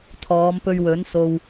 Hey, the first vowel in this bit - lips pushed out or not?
yes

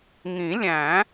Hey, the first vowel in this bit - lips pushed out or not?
no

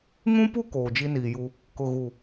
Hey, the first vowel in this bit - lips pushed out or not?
yes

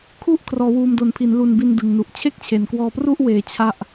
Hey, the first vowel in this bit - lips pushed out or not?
yes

